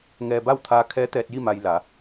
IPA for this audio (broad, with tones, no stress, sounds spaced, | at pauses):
ŋ ɛː˧ b a˥˨ w t̪ʰ aː˧ kʰ ɛː˧˥ t̪ ɛː˧ t̚ j i˥˨ m a˧ j l a˩˧